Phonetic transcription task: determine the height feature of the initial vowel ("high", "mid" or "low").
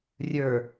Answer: mid